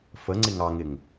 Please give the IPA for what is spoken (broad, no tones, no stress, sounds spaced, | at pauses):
f ə ŋ͡ǀ ɪ ŋ ɑ ŋ ɪ ŋ